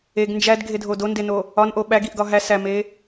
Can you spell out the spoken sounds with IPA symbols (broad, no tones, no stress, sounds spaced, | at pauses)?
e ɡ n d͡ʒ æ d ɡʱ e dʱ o d o n d e n o | ɒ n ʔ o ɓ æ ɡ i ʔ ɡ ɒ ɦ æ s æ m e